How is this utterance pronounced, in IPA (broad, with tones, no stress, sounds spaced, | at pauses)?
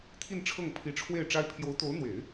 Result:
t̪ʰ i˥˧ n ʈ͡ʂʰ ɤ˥˩ ŋ pʰ i˧˥ ʈ͡ʂʰ w e˥˩ ɪ̯ ʈ͡ʂ a˥ ɪ̯ pʰ j o˧˥ ʊ̯ t̪ o˧˥ ʊ̯ n̪ w e˨˩˦ ɪ̯